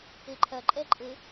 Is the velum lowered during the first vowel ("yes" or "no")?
no